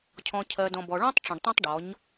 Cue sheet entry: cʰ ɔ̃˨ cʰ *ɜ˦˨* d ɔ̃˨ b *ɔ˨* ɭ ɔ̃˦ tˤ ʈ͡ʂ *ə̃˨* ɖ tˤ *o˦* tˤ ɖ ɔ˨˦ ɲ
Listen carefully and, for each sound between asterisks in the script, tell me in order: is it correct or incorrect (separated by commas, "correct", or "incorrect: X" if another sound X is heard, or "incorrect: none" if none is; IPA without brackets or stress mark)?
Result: incorrect: ɜ˨, correct, correct, incorrect: õ˦